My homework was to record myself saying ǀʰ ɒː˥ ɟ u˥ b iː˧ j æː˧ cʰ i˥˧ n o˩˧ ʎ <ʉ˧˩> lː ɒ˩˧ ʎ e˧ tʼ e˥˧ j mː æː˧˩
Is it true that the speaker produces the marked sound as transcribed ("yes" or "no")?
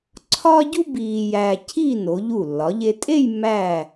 no